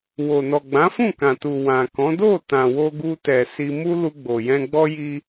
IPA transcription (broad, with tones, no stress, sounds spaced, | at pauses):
w o˨ n ɔ˨ ɡ͡b ã˨˦ f ũ˦˨ k ã˨ t u˨ w ã˨ k ɔ̃˨˦ d o˦˨ t ã˨ w o˧ ɡ u˧ t ɛ˨ s i˧ m u˦ l u˧ ɡ͡b o˨ j ɛ̃˧ ɡ͡b ɔ˦ j i˦